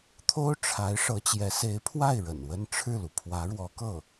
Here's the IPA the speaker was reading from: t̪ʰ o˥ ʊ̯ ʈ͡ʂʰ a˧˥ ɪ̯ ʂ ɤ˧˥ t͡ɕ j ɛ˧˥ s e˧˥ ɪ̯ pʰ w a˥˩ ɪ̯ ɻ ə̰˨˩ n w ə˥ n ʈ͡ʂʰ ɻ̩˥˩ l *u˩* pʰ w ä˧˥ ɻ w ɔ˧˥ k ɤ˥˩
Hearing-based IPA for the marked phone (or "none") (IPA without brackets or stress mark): u˩